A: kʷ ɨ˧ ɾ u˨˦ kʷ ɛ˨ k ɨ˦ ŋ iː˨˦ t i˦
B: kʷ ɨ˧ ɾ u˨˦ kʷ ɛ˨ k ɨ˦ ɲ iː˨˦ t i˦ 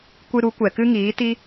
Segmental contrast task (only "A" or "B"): A